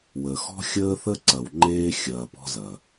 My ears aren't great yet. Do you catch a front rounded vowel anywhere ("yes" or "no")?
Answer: no